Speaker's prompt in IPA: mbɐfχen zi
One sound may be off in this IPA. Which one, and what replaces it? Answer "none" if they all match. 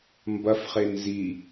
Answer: none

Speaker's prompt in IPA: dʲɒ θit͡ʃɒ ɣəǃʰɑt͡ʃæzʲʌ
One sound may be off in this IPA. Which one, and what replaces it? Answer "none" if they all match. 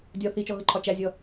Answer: ɑ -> ɒ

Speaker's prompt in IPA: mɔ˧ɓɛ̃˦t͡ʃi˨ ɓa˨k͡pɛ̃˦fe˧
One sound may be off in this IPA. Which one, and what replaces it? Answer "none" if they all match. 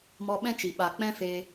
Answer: none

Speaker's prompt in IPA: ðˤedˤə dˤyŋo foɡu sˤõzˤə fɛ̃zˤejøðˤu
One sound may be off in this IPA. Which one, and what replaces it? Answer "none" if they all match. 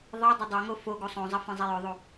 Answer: y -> ø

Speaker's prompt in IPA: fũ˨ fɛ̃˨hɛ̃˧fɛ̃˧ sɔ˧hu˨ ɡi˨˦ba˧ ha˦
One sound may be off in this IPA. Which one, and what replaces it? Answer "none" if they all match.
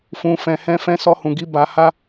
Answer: u˨ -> ũ˨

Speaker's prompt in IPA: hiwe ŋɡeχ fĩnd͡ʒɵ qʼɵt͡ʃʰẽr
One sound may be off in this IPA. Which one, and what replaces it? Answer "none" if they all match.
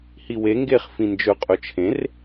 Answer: none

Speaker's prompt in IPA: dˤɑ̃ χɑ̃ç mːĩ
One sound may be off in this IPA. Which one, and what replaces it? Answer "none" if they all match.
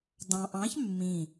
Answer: χ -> ʔ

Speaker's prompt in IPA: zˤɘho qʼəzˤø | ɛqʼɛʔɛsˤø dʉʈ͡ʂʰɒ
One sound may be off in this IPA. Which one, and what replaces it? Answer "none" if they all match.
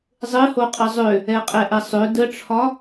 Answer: ʉ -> ə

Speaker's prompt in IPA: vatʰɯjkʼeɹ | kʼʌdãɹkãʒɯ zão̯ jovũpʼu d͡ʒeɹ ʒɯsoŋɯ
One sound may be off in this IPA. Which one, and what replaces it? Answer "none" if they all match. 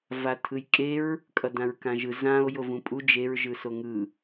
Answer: none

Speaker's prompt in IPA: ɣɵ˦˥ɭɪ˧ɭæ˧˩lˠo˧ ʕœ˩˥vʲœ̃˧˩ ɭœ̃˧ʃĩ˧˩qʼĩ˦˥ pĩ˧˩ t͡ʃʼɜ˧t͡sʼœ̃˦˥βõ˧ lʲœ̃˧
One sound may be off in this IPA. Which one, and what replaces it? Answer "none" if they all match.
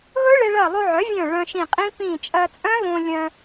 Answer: æ˧˩ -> ɜ˧˩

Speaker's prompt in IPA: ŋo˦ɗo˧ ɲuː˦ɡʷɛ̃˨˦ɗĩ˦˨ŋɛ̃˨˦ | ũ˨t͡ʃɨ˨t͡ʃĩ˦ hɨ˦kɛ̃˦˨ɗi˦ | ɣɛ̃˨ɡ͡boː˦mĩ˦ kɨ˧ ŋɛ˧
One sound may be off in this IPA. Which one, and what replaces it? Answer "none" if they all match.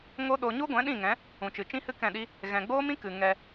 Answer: uː˦ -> u˦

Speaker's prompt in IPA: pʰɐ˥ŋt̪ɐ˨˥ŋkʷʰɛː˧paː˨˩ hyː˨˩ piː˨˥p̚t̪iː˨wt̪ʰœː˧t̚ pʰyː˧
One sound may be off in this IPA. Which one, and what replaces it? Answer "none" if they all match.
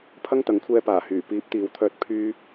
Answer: none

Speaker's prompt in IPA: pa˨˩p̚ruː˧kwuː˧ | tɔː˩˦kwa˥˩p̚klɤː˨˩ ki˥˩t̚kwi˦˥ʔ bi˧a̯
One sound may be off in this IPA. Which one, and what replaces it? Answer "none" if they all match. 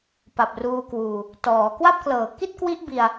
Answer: none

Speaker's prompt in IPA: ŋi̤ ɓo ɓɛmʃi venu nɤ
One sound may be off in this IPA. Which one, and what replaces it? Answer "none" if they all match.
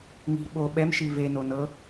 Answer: u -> o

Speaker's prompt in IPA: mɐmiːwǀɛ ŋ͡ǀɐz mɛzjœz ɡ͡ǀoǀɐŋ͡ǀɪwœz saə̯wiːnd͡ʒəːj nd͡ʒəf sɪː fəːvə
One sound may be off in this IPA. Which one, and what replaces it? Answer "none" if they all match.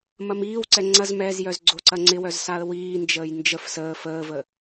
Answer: ɪː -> əː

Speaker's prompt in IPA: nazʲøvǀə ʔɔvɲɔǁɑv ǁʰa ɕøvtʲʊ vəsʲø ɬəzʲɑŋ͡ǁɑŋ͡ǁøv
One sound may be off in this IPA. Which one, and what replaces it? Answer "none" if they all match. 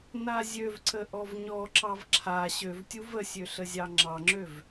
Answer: ʊ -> u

